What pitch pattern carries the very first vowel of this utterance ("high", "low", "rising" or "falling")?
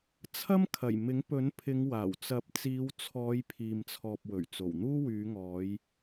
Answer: high